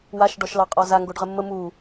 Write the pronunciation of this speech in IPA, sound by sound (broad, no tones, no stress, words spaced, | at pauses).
waʃ ɖɔʃlɑqʼɔza ŋɡoɖʁəmːə mu